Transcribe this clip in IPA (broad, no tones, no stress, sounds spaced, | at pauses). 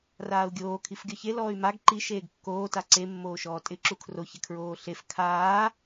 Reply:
r aː u̯ ɡʲ oː kʰ i f ɡʲ ɔ ç e l ɔː y̯ m a ɡ ǃ i ʃ eː ɡ kː oː t a ǀ e mː oː ʃ ɔː tʼ ɪ ǁ u kʰ r o ç ɪ kʰ ɹ oː ɬ e f kʰ aː